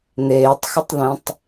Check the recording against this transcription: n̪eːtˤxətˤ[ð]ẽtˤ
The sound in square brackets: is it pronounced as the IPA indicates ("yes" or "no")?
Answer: yes